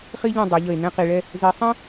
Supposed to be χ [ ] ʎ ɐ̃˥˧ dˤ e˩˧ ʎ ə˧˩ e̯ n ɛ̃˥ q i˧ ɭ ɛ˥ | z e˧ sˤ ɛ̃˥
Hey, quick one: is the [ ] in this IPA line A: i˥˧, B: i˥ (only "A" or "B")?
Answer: B